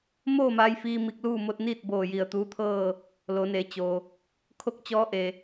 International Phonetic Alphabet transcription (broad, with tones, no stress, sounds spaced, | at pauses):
m oː˥˨ m aː˧ j f iː˧ m i˧ k̚ l uː˥˨ m o˧ t̚ n iː˥˨ t̚ b oː˧˩ j i˧˩ ə̯ t̪ uː˧˥ t̪ʰ ɤː˥˨ | l o˩˧ n e˩˧ t͡ɕ o˩ | kʰ o˥˨ k̚ t͡ɕ ɔː˧˥ ʔ e˩